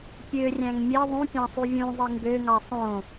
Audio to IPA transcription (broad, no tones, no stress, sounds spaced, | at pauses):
pʲ ø rʲ æ̃ ŋ mʲ e ðˤ ũ pʲ ɑ̃ sˤ y vʲ ũ zˤ i ŋ ɡ ø ŋ ɑ sˤ õ